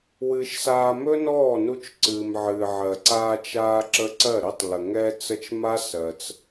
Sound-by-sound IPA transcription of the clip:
w ɨ˧ ʃ s aː˧ m ɵ˦ n ɔː˦˨ n u˧ t͡ʃ ǀ ɨː˨ m ʕ ɨː˨ ʕ ɜ˨ ǀ aː˧ t͡ʃ aː˧ ǁ ə˧ ǀ ɜ˦˨ ɾ ɘ˦ tˤ l ə˨ ŋ ɛ˧ t͡s ə˧ t͡ʃ m a˦ s ɜ˧ t͡s

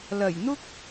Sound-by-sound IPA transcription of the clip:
l ɐ˨˩ j n̪ ʊ˥ k̚

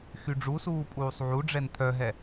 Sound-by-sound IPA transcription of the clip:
x y ɖ͡ʐ u s uː pʼ uː sˤ ʕ u ɖ͡ʐ ɛ n t̪ʰ œ ɦ ɛ

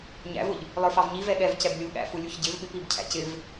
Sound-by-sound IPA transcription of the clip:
ɲ æ̰ v ʊ ʎ | lˠ ə˞ f ɑ v ɲ i v ɛ ɠ ɛ v c ɛ b lʲ u ɠ æ̰ f u lʲ u ç ɟ ɪ v ɓ ɪ p i b cʰ æ̰ c ɪ v

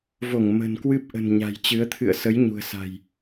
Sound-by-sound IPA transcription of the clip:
v o˧˩ ŋ m ə̤˨˩ n k w ɨ˦˥ p̚ ʔ ə̤˨˩ n ɲ a̤˨˩ j t͡ɕ ɨ˨˦ ə̯ t̪ʰ ɨ̰˧˨ ə̯ s ə˨˦ j ɲ ṳ˨˩ ə̯ s a̤˨˩ j

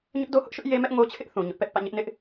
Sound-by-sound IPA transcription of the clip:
ɲ ʊ˦ ʔ d o˦ h ʊ˦ ʔ ʃ ʊ˦ ʔ j e˦ m ɛ˦ ʔ ŋ o˦ t͡ɕʰ ɪ˦ ʔ θ ũ˨ ɲ ʊ˦ ʔ p ɛ˦ ʔ p ä̰˦˨ ɲ ɪ˦ ʔ n ɪ˦ ʔ

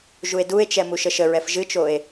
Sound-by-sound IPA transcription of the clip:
ʒ u e̯ d u e̯ t͡ʃ ɛ m u ʃ ə ʃ ə ɹ ɛ f ʒ ɨ t͡ʃ o e̯

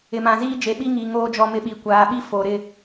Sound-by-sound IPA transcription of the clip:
ɪ˨ m ã˨ z iː˦ d͡ʒ e˨ ɓ i˦ ŋ i˨ ŋ oː˦ d͡ʒ ɔ˦ m ɪ˦ ɓ i˨ kʷ aː˨ ɓ i˦ f o˨ ɾ ɪ˦˨

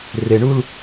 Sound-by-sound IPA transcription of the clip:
r e ɳ u l

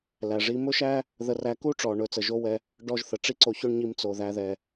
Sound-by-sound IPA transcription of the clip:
l æ˩ ʐ i˧ m ɵ˥ ʃ æ˥ | ð ə˧ r æ˧ k u˥ ʈ͡ʂ ɔ˩ ɳ ɵ˧ t͡s ə˩ ʒ o˥ w ɛ˧ | ɖ ɔ˥ ʒ θ ə˩ ʈ͡ʂ i˥ ǀ o˧ ç ɵ˥ ɳ ɲ i˧ m t͡s o˩ ð æ˧ ð ɛ˩

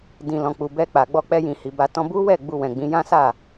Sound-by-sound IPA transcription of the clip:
d ĩ˨ l ɔ̃˨ k͡p u˨ b ɛ˧ k͡p a˨ ɡ͡b ɔ˧ k͡p ɛ˧ j ĩ˨ h i˨ b a˧ t ɔ̃˦ b u˦ w ɛ˦˨ ɡ͡b u˧ w ɛ̃˨ ɡ͡b ĩ˨˦ j ã˦ s a˦˨

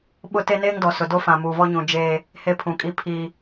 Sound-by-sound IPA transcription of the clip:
ɓ ʊ˦ t e˦ n eː˦ ŋ d ɔ˨ s ʊ˨ d o˦ f ã˨ m uː˨ v ɔ˦ ɲ ũ˨ d͡ʒ eː˦ | h e˦ pʰ ũ˨ kʼ i˦ pʰ i˦

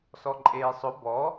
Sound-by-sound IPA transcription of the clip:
s ɔ ǃʼ eː sˤ ʊ b ɔ

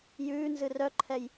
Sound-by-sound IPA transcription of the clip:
j ʉː n z ɨ r œ ǃʰ ɛ j

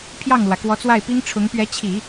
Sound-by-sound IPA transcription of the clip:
pʰ j ɑ˥˩ ŋ l w ä˩ k w ɔ˧˥ t͡s w a˥˩ ɪ̯ p i˥ ŋ ʈ͡ʂʰ ʊ˧˥ ŋ p ɥ ɛ˧˥ t͡ɕʰ i˨˩˦

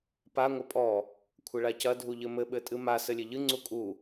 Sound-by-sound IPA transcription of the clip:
p a ŋʷ ɐ pʼ ɔ | kʷʰ ɘ ɭ a c ɐ dʱ u ʎ ɘ m ɘ ɓ ɘ tʼ ɨ m a s ɘ lʲ e ʎ ɨ ŋ͡ǀ u kʼ u

